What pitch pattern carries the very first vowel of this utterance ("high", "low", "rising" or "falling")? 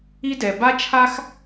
high